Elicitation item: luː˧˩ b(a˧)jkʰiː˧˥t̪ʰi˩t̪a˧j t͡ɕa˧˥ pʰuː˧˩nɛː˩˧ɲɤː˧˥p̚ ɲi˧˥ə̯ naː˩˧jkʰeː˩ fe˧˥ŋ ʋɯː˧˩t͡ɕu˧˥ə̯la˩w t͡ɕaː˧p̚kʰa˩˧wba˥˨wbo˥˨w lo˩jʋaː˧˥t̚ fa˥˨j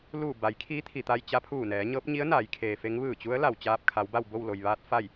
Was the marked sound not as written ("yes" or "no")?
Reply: yes